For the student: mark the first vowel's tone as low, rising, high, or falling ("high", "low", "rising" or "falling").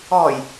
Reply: low